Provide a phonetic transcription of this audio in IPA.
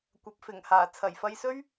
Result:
kʷ ɐ˨˥ p̚ f ɪ˨˩ ŋ h aː˨˩ t͡sʰ ɐ˨˩ j f ɐ˧ j s ɵ˥ ɥ

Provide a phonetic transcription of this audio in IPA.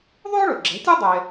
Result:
ðˤ ʉ˥ ʊ̯ ɭ ɵ˩ ɡ͡ǁ ɛ̤˩˥ tʲ o˥ dˤ e˧

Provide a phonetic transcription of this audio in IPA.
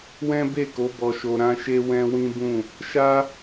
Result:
w ɛ̃˦ b e˦˨ k o˨˦ b ɔ˧ ʃ o˧ ɾ ã˦ ʃ e˦ w ɛ̃˦ w ĩ˦ b ũ˦˨ | ʃ a˦

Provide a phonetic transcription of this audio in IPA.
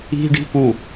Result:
i̤ ɖ i̤ p u

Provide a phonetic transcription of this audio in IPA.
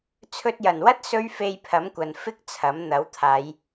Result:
t͡sʰ ɵ˧ t̚ j ɐ˨˩ n w ɐ˥ t̚ s ɵ˥ ɥ f e˧ j pʰ ɐ˨˥ m kʷ ɐ˨ n f ɪ˥ k̚ t͡sʰ ɐ˨˥ m n̪ ɐ˨˥ w t̪ʰ aː˨˧ j

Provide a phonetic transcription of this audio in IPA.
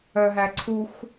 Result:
œ ɦ æ ǀʰ u x

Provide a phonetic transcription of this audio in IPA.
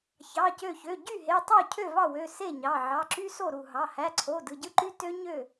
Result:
ç ɑ˩˧˩ c ø˧˩ ç ø˩˧˩ ɟ y˥˩ ɦ e˩˧˩ tˤ o˥˩ cʰ ø˥˩ v ɑ˥˩ w ø˩˧˩ s e˥˩ ɲ ɑ˩˧˩ ʕ ɑ˩˧˩ ǁ y˦˥ s o˥˩ ɾ u˧˩ ɦ ɑ˩˧˩ h æ˩˧˩ ǀʰ o˩˧˩ d ɯ˩˧˩ ɟ ɯ˦˥ ǃ y˦˥ t ø˦˥ ɲ ø˥˩

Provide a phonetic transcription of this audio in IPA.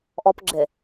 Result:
ʔ ɔ p ɡ͡ǁ e

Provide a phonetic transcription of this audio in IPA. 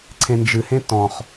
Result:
ǀʰ ẽ n d͡ʒ ɨ h ẽ t ɔ̃ χ

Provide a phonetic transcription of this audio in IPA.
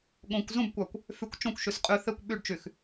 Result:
ɠ õ kʷ z ũ b kʷ a kʷ | f y kʷ t͡ʃ õ kʷ ʃ y s qʼ y θ e kʷ ɓ y ɖ t͡ʃ y x

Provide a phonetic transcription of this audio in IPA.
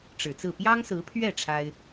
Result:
ʈ͡ʂ ɻ̩˨˩ t͡s ɹ̩˥˩ p j ɑ˥ ŋ s ɹ̩˧˥ pʰ ɥ ɛ˥˩ ʈ͡ʂʰ a˥ ɪ̯

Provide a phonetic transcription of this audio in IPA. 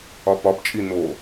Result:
ɒ p ɒ p t͡ʃʼ i n o

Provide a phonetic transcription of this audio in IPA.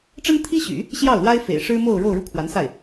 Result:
ʈ͡ʂ ə˥ n t̪ʰ i˥ ɕ y̰˨˩˦ | ɕ j ɑ˥˩ ʊ̯ l w a˥ ɪ̯ f ḛ˨˩ ɪ̯ ʂ ɻ̩˥ m o˥˧ ʊ̯ ɻ o˥˧ ʊ̯ ɻ u˥˩ kʰ w a˧˥ n s a˥˩ ɪ̯

